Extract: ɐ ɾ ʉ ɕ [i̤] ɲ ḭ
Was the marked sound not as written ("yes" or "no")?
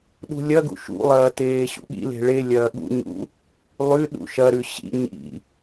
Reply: yes